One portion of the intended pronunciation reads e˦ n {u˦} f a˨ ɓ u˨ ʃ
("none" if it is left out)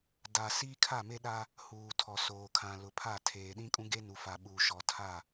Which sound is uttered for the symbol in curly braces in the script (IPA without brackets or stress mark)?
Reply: u˨